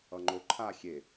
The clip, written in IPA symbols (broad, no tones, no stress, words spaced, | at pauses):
ʌŋ͡ǃo ǃʰa xʲe